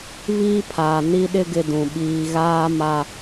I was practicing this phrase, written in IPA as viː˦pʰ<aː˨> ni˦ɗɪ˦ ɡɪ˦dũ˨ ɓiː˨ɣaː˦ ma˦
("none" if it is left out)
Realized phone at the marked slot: aː˨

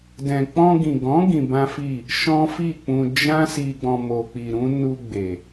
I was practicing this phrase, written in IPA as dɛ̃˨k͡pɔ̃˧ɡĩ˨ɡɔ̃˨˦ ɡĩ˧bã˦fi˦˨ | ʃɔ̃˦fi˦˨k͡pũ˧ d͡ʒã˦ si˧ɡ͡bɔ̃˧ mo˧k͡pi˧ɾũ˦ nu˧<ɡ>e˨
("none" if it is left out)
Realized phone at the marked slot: ɡ͡b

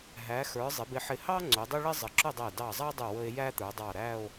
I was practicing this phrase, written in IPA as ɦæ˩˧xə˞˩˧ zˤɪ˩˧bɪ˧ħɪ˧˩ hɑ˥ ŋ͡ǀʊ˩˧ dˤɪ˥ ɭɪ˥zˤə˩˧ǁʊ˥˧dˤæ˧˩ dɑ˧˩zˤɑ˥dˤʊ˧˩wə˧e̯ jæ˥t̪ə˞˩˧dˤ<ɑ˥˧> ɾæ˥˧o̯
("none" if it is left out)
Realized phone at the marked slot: ɑ˧˩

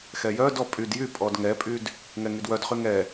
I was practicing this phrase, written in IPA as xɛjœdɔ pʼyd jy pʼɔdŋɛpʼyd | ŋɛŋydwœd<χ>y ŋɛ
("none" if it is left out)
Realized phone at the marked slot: χ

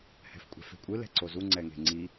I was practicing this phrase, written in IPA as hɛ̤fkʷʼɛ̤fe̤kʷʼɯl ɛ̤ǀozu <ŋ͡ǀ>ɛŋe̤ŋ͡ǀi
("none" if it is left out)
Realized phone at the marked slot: ŋ͡ǀ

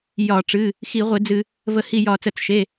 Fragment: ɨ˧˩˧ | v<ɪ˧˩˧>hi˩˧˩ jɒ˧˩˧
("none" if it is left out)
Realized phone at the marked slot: ə˧˩˧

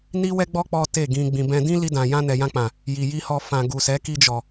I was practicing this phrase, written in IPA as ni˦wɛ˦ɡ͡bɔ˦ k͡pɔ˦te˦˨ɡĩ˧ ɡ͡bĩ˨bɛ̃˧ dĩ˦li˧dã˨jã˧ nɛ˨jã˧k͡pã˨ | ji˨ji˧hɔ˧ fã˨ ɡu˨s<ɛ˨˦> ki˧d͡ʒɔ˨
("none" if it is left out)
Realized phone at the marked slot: ɛ˨˦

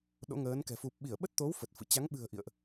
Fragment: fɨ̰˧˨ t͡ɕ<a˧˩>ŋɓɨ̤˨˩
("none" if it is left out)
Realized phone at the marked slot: a˨˦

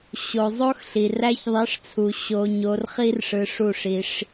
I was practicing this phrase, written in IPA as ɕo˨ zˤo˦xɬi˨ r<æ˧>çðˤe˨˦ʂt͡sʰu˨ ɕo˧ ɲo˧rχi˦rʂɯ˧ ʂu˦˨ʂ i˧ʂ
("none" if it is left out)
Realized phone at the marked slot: æ˧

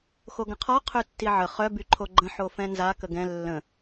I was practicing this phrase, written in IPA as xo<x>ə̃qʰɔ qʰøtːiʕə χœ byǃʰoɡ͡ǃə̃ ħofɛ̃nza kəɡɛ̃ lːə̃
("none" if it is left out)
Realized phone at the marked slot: ɡ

